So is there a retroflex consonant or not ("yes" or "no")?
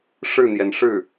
yes